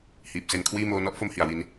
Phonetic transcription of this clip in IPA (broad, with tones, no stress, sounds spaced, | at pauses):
h iː˨˩ p̚ s e˦˥ n kʰ w iː˥˩ m oː˦˥ n ɔ˦˥ ʔ f o˥˩ m h i˩˦ a̯ w i˦˥ n